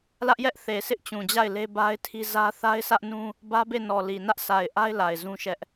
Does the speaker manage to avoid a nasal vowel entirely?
no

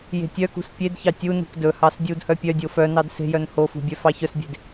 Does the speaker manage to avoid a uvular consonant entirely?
yes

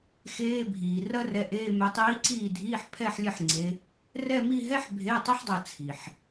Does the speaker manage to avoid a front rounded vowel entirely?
yes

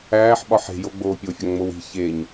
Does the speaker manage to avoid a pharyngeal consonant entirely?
no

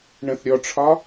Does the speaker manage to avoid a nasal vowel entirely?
no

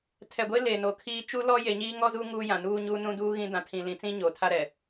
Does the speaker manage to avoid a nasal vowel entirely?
no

